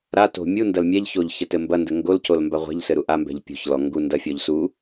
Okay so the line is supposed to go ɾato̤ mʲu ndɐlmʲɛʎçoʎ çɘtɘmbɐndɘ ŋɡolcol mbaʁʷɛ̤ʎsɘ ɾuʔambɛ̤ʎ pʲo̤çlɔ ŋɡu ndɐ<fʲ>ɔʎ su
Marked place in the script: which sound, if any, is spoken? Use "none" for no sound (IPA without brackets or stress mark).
fʲ